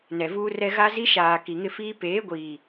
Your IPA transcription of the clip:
n ɛ˨ v uː˦ r ɛ˦ ɣ a˦ z i˦ ʃ aː˨ k i˨ ŋ ɪ˦ f iː˦ p eː˨˦ ɡʷ iː˨

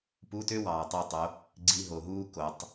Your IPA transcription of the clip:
p u˧˥˧ t ø˥ w ɑː˨ tˤ e˦˨ tˤ o˨˦ | ɡ͡ǀ i˧˥˧ ɦ o˨ ɦ uː˥ k o˨˦ tˤ

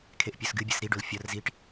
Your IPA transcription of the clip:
kʰ e ʔ pʲ o s ɡ ɨ bʲ ə s ɾ i ɖ o l fʲ ɒ r z i ʈ

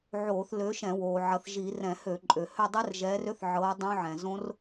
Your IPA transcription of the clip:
ʕ oː˧˩˧ θ l ø˨˦ ʃ ɛ̃˧˩˧ w oː˩ ʕ ɐ˨˦ θ ʒ i˧˩˧ r ɛ̃˧˩˧ h ø˧˩˧ ǃʼ ø˩ h ø˦˨ dˤ ɛ˦˥ r ʒ ɛː˨˦ r ø˦˥ θ ʕ ɤː˨˦ dˤ õ˦˥ ʕ ɛ̃˩ z õ˦˥ r

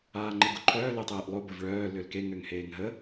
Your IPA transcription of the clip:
aː ŋ͡ǃ e ɡ o ǃʰ œː l e tˤ eː ʔ lˠ o b ə v ɭ œː l ø l k e ŋ ø ŋ h eː ŋ ɦ ə

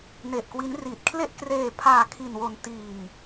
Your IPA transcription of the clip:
n e˨˩ ʔ k w i˦˥ n r i˨˩ t̚ kʰ l e˥˩ ʔ k r eː˧ pʰ aː˧ kʰ i˧ n w o˧ n t iː˧ ŋ

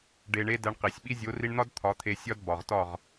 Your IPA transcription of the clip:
ɖ e˨ ɳ e˧ d æ˧ ɳ q i˨ sʲ ɓ i˦ zʲ o˨˦ r i˧ ɳ n̪ ɒ˦ d t̪ʰ ɒ˨˦ t̪ʰ e˧ sʲ ɒ˦ d b ɒ˨ ʁ t ɒ˦˨ ʁ

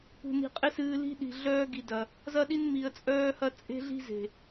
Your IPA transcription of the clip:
p ṳ˨ n i̤˨ qʼ ɪ˦ s ɨː˧ l i̤˧ ɗ i̤˨ ɮ œː˧ ɡ i˨ d ɐ˨ | z ɐ˦ ɗ i˦ n m i˨ ə̯ t͡sʼ œː˧ h ɐ˧ t͡sʼ e̤˦ ɮ i̤˦ z e̤˨

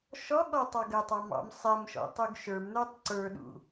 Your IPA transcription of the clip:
ʃ ɔ ɠ ɔ tˤ ɑ ɡ ə tˤ ɑ m ɑ̰ m sˤ ɛ m ʃ ɔ̰ tˤ u ɡ ʃ ə˞ m n ə˞ tˤ ǀ ə˞ ɗ ṵ

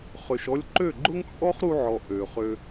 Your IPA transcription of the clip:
χ ø˨ ʃ ɔ˧ lʲ ǃ ø˦˨ ɡ͡ǃ ʊ˦ ŋ t͡sʼ ɔ˦ χ ɾ u˧ ʕ ɔ˨ ʔ ø˨ χ ø˧

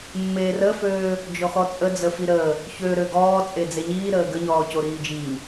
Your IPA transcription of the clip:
mː eː r ə f øː | d͡ʒ ɔ x ɔ t͡sʼ ə d͡z ə f i ɾ əː | ç ø ɾ ø ɡ ɔː t͡sʼ e d͡z e ɲ iː ɾ əː ɡ ə ɲ ɔː c o ɾ iː d͡ʒ iː

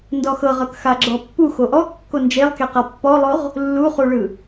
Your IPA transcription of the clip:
n d ɔ x ɤ ʁ ɤ k x a ɡ͡ǁ ɔ pː u x o ʔ ɔ kː o n d͡ʒ e lˠ k e q a pː ɔ lˠ o ʁ | lː u χ u ɭ ɯ

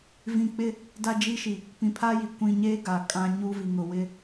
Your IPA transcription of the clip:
v ĩ˨ k͡p ɪ˦ | d a˦ d͡ʒ i˦ ʃ i˨ | p ĩ˨ pʰ aː˦ j i˨ kʷ ĩ˨ ɲ eː˦ ɡ a˨ kʼ ã˦ ɲ u˦ v i˨ ŋ ʊ˨ w ɪ˦

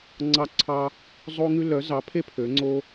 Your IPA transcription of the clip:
ŋ͡ǀ ɑ˥ ǀʰ ɑ˥ | zˤ o˥ ŋ ʉ˥ l œ˨˥ z ɑ˨˥ pʰ e˥ pʰ ø˨˥ ŋ͡ǀ o˥

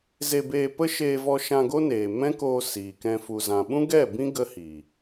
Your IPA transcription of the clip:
z e˧ b eː˧ p ə˦ ʃ eː˧ v ɔ˧ ʃ ã˧ ɡ o˦ n eː˨ m ɛ̃˦ k oː˧ s iː˨ k ɛ̃˧ f u˨ z ã˨ ɓ ũ˦ ɡ ɛ˦˨ b ĩ˦ ɡ ə˦ h i˨

